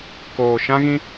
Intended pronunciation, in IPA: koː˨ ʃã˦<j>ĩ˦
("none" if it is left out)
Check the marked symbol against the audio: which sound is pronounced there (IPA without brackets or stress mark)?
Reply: ɣ